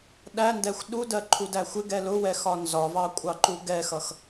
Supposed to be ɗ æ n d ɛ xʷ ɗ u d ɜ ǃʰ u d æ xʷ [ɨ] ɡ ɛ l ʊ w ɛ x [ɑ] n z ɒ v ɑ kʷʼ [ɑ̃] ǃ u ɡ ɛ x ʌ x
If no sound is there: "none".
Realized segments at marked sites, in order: ɪ, ɒ, ɑ

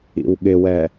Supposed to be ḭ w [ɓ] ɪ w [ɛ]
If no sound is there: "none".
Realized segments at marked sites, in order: ɠ, ɛ

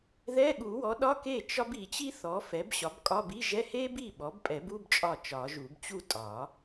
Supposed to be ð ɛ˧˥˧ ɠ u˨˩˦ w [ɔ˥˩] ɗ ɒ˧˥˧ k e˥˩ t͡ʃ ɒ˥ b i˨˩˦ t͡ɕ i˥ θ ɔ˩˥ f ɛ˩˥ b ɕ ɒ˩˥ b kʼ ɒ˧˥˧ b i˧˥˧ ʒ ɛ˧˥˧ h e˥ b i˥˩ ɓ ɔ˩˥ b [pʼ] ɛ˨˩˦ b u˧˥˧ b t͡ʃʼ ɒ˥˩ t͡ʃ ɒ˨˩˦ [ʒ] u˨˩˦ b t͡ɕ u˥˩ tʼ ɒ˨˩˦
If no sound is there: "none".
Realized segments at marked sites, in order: ɔ˩˥, pʼ, ʒ

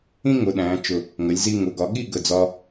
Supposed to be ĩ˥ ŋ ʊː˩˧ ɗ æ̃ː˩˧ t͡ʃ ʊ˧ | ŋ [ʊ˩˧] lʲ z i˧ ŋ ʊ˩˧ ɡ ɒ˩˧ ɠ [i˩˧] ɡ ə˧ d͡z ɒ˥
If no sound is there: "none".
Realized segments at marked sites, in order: ə˩˧, i˥˧

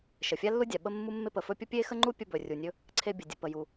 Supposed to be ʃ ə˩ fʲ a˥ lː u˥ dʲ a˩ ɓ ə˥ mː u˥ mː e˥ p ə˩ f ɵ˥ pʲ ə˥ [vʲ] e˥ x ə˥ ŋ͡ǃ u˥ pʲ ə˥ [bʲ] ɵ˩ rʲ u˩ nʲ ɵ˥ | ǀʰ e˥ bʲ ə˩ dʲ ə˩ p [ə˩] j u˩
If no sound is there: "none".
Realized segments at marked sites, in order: pʲ, b, ə˩

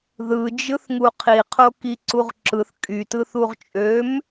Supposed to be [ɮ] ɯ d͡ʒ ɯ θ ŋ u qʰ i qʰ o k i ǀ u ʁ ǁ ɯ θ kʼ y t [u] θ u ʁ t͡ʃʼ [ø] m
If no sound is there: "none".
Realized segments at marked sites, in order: ð, ɯ, ø

